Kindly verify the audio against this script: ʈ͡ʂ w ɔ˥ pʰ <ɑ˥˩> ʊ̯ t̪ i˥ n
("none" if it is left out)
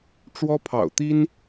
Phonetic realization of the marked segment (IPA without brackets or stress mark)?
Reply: ɑ̰˨˩